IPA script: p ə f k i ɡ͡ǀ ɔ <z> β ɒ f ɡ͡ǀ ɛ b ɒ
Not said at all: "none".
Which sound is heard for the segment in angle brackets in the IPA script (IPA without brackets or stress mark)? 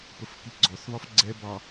θ